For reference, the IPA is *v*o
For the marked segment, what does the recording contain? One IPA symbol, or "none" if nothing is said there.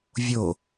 vʲ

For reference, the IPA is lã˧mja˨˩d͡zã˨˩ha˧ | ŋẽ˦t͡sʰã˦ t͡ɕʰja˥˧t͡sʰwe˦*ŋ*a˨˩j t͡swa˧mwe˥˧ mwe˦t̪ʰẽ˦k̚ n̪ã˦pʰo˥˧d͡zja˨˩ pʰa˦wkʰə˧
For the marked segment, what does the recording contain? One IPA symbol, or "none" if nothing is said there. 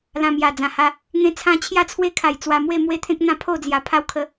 kʰ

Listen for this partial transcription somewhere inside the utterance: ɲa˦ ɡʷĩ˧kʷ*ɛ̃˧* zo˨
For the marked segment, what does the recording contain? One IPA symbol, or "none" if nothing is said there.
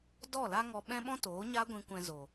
ɛ̃˧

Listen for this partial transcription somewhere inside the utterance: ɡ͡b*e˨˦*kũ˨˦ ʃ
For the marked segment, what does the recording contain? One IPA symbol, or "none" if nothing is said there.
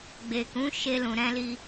e˨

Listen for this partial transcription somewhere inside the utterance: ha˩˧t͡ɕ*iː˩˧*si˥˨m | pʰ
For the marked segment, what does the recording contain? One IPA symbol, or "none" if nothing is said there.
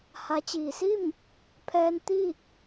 iː˩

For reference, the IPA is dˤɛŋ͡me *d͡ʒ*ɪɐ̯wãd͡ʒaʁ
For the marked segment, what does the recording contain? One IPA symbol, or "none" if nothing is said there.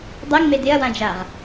d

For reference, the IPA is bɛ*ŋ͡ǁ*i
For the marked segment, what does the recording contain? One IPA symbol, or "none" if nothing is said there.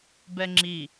ŋ͡ǁ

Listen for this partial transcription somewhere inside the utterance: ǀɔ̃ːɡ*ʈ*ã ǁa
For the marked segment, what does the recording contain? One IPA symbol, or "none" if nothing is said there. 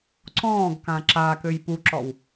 k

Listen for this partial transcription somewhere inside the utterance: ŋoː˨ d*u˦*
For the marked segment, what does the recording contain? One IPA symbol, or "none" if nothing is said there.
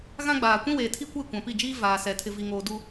u˦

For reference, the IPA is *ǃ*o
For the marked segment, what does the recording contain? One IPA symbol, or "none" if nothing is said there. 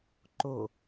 ǃ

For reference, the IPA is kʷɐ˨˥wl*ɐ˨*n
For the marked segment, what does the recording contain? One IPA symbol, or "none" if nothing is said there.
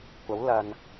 ɐ˨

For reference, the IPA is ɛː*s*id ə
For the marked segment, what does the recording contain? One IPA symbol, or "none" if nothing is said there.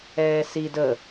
s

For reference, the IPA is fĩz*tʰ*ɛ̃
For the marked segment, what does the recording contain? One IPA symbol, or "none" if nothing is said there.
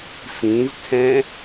tʰ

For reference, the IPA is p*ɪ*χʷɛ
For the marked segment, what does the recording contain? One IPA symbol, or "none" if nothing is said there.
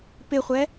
ɪ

